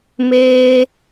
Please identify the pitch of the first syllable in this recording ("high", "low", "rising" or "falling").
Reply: high